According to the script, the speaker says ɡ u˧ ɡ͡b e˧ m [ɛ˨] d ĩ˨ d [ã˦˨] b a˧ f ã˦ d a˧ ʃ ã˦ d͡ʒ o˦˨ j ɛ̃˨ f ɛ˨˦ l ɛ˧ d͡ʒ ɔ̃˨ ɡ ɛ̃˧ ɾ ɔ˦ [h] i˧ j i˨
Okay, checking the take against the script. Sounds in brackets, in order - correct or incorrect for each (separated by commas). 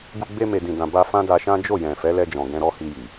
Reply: incorrect, incorrect, correct